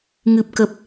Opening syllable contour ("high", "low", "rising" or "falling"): low